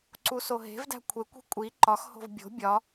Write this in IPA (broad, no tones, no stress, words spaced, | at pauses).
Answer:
ǀusoɦe̤vdæ̤ kʷʰekʷi̤ kʷʼi ǃɒxho̤v bʲo̤ bʲɒ